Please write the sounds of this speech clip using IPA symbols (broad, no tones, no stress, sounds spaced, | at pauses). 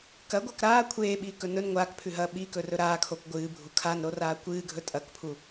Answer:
k ɐ ɡʷ ɐː k ɾ aː kʷʰ eː ɓ iː k ɵ n ɵ n ŋʷ aː k pʰ ʉ ɦ ɐː ɓ i k ɵ r ɵ ɾ aː kʰ o k ɡʷ ɨː bʱ u kʰ a n ɾ o r aː kʷ ɨː ɡʱ ɵ tʼ ɐ k pʰ u